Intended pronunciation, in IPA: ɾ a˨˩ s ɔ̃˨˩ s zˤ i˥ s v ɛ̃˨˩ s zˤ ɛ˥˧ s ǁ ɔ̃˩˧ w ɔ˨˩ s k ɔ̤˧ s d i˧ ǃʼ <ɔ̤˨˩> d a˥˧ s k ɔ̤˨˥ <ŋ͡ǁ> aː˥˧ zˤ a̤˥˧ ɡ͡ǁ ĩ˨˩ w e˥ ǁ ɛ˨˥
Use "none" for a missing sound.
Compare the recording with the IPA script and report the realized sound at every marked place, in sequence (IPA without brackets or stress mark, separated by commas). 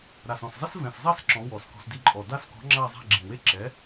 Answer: ɔ˨˩, ŋ͡ǁ